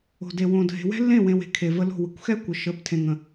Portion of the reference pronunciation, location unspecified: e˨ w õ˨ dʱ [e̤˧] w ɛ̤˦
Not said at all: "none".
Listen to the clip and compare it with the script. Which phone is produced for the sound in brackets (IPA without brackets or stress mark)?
e̤˨